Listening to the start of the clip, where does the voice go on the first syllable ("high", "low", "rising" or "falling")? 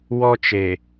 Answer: high